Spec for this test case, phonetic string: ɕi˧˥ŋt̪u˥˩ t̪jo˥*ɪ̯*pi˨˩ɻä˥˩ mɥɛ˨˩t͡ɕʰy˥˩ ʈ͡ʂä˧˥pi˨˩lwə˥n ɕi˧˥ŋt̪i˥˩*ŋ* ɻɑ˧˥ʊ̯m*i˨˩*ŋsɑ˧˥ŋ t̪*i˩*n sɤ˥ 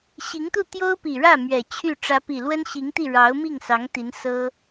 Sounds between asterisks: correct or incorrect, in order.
incorrect, incorrect, incorrect, incorrect

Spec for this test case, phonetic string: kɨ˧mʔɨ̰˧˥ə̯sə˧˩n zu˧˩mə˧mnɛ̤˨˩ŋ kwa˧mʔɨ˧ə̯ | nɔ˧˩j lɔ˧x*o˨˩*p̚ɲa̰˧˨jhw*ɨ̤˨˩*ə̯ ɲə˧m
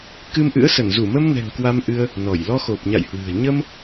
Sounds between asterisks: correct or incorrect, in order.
correct, correct

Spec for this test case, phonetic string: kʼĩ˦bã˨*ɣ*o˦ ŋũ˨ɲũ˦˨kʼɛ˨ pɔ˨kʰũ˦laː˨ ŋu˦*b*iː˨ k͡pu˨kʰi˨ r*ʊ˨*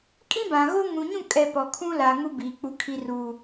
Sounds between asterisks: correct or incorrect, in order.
correct, correct, incorrect

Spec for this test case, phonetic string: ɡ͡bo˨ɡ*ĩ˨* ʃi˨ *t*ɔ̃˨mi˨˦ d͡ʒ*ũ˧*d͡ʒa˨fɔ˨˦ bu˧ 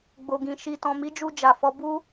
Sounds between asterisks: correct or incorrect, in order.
correct, correct, incorrect

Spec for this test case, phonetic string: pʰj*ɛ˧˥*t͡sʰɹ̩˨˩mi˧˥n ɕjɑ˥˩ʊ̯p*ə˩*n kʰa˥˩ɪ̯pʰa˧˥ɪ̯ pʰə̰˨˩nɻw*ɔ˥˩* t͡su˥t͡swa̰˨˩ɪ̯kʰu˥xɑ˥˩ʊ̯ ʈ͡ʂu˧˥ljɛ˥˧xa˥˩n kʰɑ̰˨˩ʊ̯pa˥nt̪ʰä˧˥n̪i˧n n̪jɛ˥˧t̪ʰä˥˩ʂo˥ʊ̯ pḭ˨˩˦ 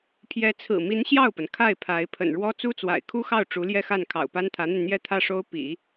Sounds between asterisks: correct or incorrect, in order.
correct, correct, incorrect

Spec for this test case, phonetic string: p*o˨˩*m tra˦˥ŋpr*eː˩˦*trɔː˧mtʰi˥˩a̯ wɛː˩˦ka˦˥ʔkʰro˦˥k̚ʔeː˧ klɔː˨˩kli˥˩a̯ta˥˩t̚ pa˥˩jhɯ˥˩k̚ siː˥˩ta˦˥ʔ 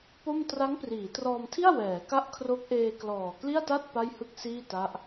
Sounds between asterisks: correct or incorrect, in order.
incorrect, incorrect

